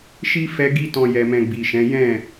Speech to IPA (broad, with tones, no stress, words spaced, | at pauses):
ʃi˦ fɛ˦ ɡi˦tɔ̃˧ jɛ˧mɛ̃˧ ɡ͡bi˨ʃɛ̃˨˦ jɛ̃˦˨